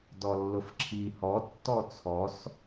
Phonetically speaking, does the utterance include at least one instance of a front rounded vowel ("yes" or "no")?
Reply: no